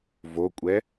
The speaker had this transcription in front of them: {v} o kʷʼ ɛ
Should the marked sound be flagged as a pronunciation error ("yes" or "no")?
no